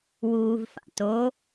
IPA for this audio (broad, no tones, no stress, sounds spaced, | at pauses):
w uː v f a̰ t o